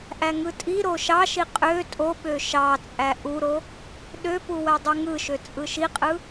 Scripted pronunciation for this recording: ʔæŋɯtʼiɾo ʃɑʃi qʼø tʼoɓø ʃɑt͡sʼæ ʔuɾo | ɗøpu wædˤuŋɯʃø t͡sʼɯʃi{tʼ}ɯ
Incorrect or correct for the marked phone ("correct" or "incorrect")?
incorrect